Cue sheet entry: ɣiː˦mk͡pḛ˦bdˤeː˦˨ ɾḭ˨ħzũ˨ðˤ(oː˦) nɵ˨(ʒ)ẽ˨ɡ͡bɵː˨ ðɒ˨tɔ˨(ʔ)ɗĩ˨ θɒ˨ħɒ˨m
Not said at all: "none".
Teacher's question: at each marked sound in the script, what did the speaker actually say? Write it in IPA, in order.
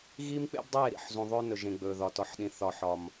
ɵː˦, ʒ, ħ

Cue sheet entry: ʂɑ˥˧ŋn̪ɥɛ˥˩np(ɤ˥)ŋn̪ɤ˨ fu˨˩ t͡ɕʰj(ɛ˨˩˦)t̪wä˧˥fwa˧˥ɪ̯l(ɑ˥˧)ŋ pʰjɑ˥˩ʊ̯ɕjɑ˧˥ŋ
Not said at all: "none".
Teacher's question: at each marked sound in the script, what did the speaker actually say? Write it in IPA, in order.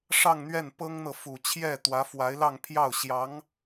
ɤ˥, ɛ˥˩, ɑ˥˧

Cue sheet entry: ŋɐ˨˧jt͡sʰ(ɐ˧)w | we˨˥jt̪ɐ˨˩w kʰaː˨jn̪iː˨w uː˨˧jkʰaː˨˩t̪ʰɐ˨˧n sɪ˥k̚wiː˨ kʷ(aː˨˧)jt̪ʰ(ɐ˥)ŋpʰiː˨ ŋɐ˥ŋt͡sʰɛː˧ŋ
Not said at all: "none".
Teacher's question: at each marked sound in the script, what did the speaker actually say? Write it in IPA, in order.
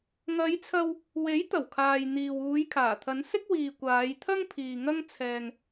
ɐ˧, aː˨˧, ɐ˥

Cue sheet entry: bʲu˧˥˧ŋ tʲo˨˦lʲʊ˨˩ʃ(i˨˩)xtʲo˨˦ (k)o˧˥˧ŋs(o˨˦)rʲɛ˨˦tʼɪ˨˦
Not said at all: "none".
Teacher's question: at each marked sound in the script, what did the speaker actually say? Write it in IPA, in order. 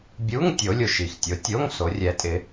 i˨˩, tʲ, o˨˦

